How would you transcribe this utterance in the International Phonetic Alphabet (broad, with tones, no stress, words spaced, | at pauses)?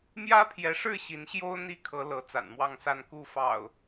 mjä˦pʰjɛ˨˦ʂɻ̩˥˨ ɕi˨˦nɕjo˦ʊ̯ n̪i˨˦ kʰɤ˨˦ lɤ˨˦ t͡sa̰˨˩nmwɑ˥˨ŋsa˥˨n ku˥˨fɑ̰˨˩ʊ̯